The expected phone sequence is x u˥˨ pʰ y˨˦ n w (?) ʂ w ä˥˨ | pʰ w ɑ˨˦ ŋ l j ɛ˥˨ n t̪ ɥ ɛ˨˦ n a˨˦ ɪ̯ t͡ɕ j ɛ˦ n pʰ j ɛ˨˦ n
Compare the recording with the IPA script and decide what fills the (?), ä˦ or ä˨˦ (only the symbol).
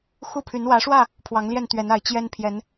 ä˨˦